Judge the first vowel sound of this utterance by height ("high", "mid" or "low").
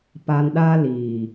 low